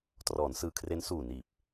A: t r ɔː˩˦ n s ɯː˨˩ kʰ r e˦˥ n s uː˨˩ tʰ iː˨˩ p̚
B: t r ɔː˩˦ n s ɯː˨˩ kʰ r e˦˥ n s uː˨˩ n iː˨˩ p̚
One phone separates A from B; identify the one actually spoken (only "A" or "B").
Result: B